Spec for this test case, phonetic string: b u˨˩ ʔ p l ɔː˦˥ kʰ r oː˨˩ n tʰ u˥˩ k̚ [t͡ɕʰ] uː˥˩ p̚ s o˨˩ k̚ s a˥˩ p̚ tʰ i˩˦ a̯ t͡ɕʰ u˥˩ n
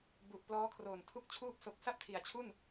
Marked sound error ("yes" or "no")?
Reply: no